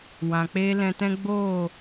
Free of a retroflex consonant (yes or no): yes